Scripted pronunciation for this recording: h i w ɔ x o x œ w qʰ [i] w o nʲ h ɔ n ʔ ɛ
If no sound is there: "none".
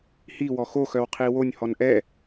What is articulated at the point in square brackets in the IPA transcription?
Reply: i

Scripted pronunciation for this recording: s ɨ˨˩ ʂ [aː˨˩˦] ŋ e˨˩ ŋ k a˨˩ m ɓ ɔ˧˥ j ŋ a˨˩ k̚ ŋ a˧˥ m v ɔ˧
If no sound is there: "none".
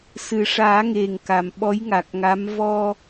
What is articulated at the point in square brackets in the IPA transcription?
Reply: aː˨˩˦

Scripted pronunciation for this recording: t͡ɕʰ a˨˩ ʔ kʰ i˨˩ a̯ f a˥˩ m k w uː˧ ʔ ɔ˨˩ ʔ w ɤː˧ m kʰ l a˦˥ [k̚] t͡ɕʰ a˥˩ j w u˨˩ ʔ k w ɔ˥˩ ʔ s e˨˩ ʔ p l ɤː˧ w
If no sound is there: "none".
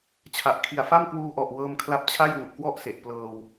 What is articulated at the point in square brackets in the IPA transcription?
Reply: p̚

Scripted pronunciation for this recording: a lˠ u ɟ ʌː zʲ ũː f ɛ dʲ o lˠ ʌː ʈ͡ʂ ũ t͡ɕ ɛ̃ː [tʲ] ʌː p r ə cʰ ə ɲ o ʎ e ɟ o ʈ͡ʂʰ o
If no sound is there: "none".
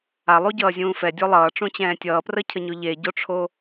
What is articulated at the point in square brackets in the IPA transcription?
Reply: tʲ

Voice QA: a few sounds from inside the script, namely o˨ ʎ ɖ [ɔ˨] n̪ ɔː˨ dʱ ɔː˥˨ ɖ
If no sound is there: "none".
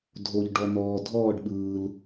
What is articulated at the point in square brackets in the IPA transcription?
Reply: ɔ˨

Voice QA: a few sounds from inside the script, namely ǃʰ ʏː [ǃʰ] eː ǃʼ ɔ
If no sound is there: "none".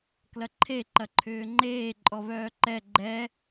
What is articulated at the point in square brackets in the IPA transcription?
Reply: ŋ͡ǃ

